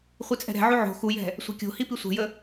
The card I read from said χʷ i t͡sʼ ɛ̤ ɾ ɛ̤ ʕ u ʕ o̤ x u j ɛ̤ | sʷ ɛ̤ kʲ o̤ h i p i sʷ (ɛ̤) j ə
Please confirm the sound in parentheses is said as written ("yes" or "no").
yes